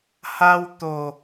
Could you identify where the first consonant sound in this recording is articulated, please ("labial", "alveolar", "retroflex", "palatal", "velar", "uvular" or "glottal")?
glottal